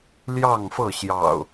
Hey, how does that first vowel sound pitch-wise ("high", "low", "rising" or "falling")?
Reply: falling